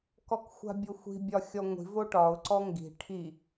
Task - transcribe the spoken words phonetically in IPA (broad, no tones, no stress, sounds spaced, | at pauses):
k ɔ k xʷ a̤ bʲ o xʷ i̤ bʲ ɒ xʲ ɔ ŋʷ i̤ v o ʈ ɒ ʊ̯ ǀ ɔ ŋ ɡ i̤ ʈʰ i